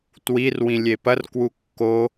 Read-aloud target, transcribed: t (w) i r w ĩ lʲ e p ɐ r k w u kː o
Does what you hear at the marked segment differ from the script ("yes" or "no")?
no